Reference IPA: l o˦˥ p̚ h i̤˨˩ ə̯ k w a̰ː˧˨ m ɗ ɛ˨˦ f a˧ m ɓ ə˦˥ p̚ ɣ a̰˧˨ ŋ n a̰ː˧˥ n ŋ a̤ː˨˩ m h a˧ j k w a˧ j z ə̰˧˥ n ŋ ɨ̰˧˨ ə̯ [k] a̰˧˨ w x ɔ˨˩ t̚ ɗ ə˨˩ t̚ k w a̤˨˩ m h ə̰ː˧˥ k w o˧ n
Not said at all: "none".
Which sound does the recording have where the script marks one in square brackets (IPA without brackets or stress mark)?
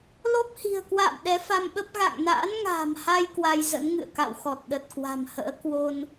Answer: k